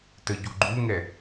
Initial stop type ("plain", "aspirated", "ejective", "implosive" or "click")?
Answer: plain